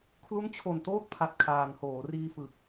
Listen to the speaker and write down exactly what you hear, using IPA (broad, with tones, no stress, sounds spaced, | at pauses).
kʰ l u˦˥ n t͡ɕʰ o˨˩ n t oː˥˩ t̚ pʰ a˨˩ t̚ kʰ aː˨˩ n h oː˩˦ r iː˧ f ɯ˨˩ k̚